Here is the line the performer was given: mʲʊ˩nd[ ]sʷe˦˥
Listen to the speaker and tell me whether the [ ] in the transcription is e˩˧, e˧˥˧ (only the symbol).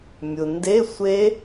e˧˥˧